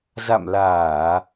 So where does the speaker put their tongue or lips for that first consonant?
tongue tip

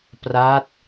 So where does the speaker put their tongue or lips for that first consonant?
lips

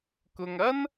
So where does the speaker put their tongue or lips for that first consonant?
velum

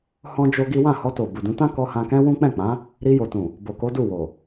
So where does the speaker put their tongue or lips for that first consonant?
throat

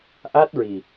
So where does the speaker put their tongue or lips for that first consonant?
throat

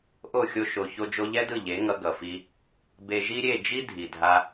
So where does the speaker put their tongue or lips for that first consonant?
throat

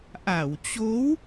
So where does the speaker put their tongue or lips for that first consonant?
throat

